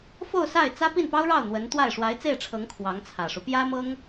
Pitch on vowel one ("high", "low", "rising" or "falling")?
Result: falling